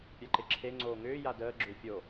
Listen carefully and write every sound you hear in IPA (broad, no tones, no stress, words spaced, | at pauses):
pʲaǃeǁʰe ŋ͡ǀoːŋʏː jadəː ɡ͡ǁʏːfʲo